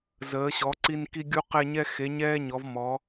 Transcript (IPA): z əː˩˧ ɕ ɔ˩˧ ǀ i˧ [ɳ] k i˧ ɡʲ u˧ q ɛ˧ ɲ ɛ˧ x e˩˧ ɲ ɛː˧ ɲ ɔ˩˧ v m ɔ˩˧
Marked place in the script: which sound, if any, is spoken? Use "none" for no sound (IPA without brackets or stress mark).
n